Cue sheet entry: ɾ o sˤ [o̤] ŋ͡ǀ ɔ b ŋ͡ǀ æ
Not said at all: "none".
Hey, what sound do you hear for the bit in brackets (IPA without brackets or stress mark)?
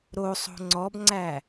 o̤